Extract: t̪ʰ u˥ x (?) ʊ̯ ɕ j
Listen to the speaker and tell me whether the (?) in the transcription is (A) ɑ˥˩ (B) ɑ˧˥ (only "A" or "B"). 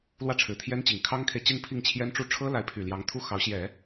B